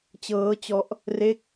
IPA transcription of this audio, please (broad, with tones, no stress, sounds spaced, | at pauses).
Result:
t͡ɕ ɤː˦˥ t͡ɕ ɔ˦˥ ʔ | r e˥˩ k̚